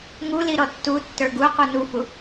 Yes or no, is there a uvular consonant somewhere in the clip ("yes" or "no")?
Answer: yes